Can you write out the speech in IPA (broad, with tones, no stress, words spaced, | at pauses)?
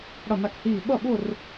ɽʌ˧˩na˧˩khiː˧˩ ɓʌ˥˩ɓʊ˥˧r